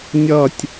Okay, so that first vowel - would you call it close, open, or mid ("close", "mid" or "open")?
mid